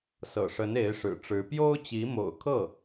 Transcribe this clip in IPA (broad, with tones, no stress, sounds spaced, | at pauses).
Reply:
s ɤ̰˨˩ ʂ ə˧˥ n e˧˥ ɪ̯ ʂ ɻ̩˨˩ ʈ͡ʂ ɻ̩˧˥ p j o˥ ʊ̯ t͡ɕ i˧˥ m o̰˨˩ ʊ̯ kʰ ɤ˥˩